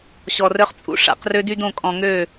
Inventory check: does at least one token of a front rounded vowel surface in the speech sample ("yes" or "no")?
yes